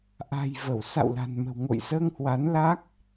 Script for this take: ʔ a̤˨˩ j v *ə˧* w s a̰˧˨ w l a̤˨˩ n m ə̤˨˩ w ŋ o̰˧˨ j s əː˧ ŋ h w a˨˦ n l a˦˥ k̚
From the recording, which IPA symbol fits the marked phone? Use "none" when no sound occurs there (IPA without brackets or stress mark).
ə˧˩